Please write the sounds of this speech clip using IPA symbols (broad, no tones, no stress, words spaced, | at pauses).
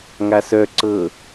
ŋasœ ǀɤ